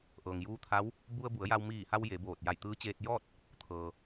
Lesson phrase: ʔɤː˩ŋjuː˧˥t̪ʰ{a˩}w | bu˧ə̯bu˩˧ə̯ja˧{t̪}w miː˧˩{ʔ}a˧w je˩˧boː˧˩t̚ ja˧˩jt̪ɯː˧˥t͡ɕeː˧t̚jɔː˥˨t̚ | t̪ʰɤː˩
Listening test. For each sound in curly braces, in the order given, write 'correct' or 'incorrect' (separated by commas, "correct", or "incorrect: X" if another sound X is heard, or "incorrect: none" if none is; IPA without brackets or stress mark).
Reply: incorrect: a˧˥, incorrect: none, incorrect: h